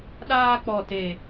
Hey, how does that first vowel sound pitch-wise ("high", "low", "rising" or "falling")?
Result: high